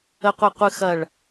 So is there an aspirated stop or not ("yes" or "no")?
no